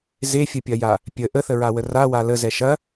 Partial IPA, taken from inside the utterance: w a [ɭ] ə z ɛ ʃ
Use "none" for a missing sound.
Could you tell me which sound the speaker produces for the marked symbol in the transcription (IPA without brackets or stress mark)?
l